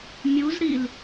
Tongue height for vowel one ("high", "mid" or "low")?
high